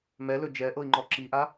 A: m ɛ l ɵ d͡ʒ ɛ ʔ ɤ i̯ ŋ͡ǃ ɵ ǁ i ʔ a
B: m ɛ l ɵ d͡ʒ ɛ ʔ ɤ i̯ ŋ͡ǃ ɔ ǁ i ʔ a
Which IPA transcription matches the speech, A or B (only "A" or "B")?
B